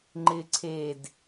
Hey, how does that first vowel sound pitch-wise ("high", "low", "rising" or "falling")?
high